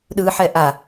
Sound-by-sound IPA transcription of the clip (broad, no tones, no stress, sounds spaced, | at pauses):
ɗ ɯ ħ ɛ ʔ a